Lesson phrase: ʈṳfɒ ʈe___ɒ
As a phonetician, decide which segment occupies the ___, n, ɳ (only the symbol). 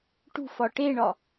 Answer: ɳ